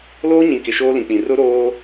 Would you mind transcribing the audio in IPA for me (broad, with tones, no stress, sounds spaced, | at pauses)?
l oː˦ ɲ ĩ˨ k ɪ˨ ʃ oː˦ l ĩ˨ k͡p ĩ˨ r ʊ˦ ɾ oː˦